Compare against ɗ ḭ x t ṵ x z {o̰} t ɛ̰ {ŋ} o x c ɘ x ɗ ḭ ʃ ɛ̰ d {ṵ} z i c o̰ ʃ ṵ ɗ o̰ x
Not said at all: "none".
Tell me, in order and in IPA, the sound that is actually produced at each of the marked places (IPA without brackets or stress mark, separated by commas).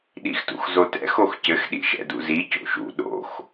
o, x, ṵ